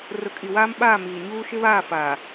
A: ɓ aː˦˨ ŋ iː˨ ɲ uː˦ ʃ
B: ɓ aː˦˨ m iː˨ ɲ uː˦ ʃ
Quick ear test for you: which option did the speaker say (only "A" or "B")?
B